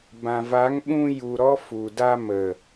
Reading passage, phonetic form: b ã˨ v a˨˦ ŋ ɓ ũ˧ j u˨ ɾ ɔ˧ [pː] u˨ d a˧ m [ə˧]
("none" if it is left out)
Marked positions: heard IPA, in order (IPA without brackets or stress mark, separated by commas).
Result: f, ə˨